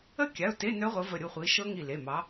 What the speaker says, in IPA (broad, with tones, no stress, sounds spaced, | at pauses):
ə˦˥ kʲ a˩˧˩ ʊ̯ t e˧˥˧ n œ˦˥ ʁʷ ə˨˦ v ə˧˩ ɾʲ u˥˩ χʷ i˨˦ ʃ ɤ˦˥ ŋ i˧˩ l e˩˧˩ m ɑ˨˦